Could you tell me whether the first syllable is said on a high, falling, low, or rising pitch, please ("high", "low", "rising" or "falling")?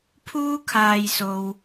high